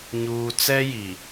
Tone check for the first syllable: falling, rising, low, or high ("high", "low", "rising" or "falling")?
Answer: low